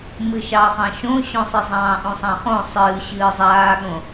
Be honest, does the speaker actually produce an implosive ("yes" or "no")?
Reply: yes